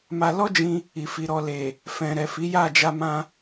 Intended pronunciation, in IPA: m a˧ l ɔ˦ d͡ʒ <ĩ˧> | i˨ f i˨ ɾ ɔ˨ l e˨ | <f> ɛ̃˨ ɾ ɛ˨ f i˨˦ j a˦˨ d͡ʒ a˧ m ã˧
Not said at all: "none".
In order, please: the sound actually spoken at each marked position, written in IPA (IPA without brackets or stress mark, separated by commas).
ĩ˧, f